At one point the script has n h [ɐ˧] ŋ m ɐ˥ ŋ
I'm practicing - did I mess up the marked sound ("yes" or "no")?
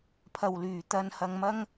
no